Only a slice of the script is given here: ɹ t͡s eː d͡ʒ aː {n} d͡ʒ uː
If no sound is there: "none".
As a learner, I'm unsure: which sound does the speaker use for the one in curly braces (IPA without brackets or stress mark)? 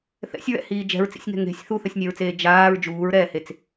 ɹ